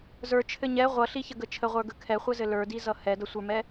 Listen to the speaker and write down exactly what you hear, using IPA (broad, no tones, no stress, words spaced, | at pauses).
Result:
zə˞t͡ʃʰɘ ɲɛ ʁʷʌɬiçəɡə t͡ʃʰəʁʷə˞ɡə kʰɛχʷɘzɘ lə˞dizʌ hɛdʌsʷə˞mɛ